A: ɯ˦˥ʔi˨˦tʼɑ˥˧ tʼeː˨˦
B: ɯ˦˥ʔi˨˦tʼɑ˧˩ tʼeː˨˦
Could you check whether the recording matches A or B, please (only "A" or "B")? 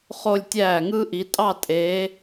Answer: A